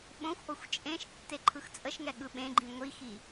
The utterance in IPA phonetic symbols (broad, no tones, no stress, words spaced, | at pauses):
ɓõxʷʔoxʷ t͡ʃʼẽʃ tːeǃʰɯxt͡sʼəʃŋɛ ɠɯɓẽɡ͡ǃĩ ŋʷixi